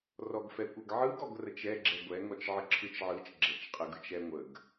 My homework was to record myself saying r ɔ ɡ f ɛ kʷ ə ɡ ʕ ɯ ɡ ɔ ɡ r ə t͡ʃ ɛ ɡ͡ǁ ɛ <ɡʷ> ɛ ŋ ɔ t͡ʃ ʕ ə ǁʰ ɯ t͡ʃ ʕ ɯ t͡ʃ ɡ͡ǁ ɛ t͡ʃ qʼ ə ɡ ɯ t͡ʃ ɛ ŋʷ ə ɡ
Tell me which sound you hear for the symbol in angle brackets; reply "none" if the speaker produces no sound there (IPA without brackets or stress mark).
ɡʷ